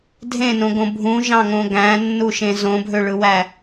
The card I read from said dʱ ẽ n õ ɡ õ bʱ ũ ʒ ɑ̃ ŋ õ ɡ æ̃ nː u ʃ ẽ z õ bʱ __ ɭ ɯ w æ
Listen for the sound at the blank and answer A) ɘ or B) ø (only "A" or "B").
B